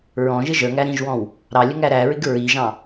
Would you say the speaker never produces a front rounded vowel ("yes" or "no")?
yes